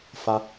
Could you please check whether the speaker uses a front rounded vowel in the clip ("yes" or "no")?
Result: no